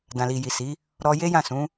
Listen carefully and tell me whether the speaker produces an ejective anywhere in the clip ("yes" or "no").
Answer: no